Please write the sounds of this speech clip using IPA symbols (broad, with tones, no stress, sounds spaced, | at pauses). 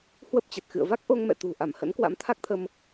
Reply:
h w ə˦˥ p̚ t͡ɕ ə˨˩ t̚ x ɨ̰˧˨ ə̯ v a˦˥ k̚ ʔ o˧ ŋ m ɛ̰˧˨ t̪ ṳ˨˩ ʔ a˧˩ m h ə̰˧˥ n k w a̰˧˥ m t̪ʰ a˦˥ k̚ t̪ʰ ə˧ m